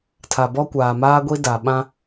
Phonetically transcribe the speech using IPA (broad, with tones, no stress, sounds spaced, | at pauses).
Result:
tʰ a˨ b ɔ˦ kʷ aː˨ m aː˦ ɡʷ i˦ d a˨ ɓ ã˦